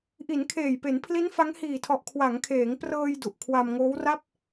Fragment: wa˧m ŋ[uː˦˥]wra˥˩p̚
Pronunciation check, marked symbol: incorrect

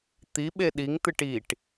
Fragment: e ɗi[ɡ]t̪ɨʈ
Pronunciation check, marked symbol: incorrect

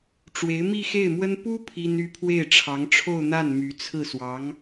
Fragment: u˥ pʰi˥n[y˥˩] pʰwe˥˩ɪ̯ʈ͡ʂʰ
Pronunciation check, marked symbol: incorrect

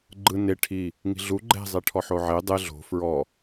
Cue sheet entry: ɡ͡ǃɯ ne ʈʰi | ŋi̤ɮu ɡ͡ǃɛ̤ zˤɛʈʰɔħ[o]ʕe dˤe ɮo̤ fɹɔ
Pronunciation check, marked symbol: correct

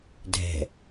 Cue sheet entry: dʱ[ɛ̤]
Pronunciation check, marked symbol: correct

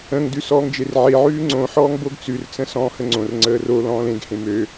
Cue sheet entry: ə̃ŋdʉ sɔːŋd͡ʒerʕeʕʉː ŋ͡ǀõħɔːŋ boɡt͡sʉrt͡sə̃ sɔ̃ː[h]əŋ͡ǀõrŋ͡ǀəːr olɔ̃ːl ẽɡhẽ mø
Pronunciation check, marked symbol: correct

